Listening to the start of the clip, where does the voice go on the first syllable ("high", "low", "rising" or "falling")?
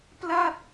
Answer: falling